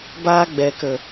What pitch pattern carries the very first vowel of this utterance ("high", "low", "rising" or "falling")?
high